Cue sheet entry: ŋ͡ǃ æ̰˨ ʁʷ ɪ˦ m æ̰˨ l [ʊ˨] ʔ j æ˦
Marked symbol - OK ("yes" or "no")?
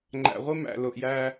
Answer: yes